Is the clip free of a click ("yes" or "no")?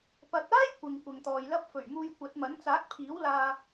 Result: yes